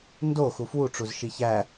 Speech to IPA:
ndo xufwuʈ͡ʂuz ʃiçæ

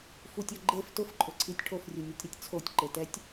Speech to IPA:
futʲɔ ɡ͡ǃef tʊfǃʼʊǀʰitʲ ʈʰofrʲunʲɛtʲɾetʲ t͡sʰotʲǃe tɛtʲ

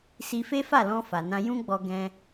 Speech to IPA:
si˧fe˦fa˦˨lɔ̃˧ fa˨nã˧ jũ˦ɡ͡bɔ˧ ɡɛ̃˧

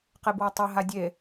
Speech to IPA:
qebwatˤɛ ɦadʲe

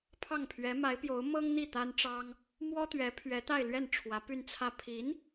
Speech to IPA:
pʰɑ˥˩ŋ pʰɥɛ˧˥ma˧˥ɪ̯pjo˧˥ʊ̯ mɤ˥ŋn̪i˥˩ t̪a˥nʈ͡ʂɑ˥ŋ | mwɔ˥t̪ɥɛ˧˥ pʰɥɛ˧˥t̪a˥˧ɪ̯lɥɛ˥˩n ʈ͡ʂʰwä˧˥py˥˧nt͡sʰä˥˩ pʰi˧˥n

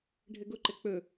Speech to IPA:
ɖʱɘɡʊǃɘ k͡pɵ

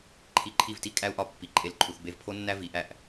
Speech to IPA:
ǃʰi˧ǃʰi˦˨vti˦ kʼæ˦u̯ʔɒ˧ pːi˨ǃʼe˧l ǃʰu˨θbe˧vpʰo˦nːæ˦ vi˨˦ʔæ˦˨ʔ

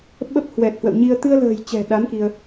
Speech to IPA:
ɓə˦˥p̚hwɛ˨˩t̚hwə̰˧˨wɲi˧ə̯ t̪ɨ˧ə̯lə̤ː˨˩j t͡ɕɛ̤˨˩ɗa˨˦n ki˧ə̯

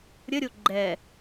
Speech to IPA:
ɾʲəɾʲo ɡ͡ǃɛ

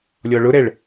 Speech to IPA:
lʲɔɭʊɾɛɭ

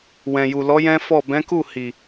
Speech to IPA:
wɛ̃˨ju˨lɔ˨˦ jɛ̃˦fɔ˦˨ bɛ̃˨˦ku˦˨hi˨

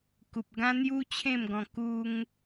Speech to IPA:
ku˨p̚ɡã˦n̪ju˦ t͡ɕʰẽ˥˧mɡɔ̃˧ ku˧ŋ

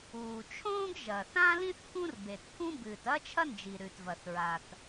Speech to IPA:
uː˩t͡ʃʰõː˥ɡʒɐ˩ θã˥lĩ˥θ kũ˥rbe˩tpʰũ˥ bɨː˩tɐ˥t͡ʃʰɐ˥nd͡ʒi˩ ɾʉ˩tvɐ˩θ ɹa˩t

